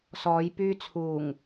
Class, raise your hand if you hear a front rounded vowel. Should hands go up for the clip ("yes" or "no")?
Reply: yes